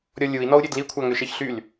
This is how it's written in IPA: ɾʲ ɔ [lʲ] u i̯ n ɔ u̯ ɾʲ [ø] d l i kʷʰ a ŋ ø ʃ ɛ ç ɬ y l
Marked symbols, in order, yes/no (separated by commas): yes, yes